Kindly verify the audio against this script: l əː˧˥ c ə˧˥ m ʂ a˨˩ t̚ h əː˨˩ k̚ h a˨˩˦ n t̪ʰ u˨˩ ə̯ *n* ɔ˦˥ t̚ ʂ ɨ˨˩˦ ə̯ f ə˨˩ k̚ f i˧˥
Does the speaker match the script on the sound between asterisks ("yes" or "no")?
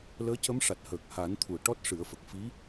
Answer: no